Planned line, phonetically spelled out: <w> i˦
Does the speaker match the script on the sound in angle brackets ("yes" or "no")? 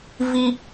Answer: no